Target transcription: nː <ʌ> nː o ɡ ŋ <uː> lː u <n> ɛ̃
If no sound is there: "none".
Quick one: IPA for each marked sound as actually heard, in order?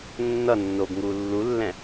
ʌ, uː, lː

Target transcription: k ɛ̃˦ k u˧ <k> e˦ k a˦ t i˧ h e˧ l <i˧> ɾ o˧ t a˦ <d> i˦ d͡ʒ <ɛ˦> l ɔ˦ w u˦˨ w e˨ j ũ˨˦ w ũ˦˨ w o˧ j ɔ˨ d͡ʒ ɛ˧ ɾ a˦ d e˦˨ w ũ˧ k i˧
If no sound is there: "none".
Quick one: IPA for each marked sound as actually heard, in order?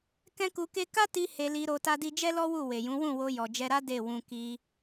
k, i˧, d, ɛ˦

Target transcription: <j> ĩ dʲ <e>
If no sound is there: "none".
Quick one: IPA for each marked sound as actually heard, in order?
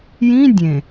j, ẽ

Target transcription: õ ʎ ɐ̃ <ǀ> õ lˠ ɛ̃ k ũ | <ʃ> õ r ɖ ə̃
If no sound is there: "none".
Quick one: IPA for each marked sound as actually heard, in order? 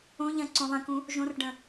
ǀ, ʒ

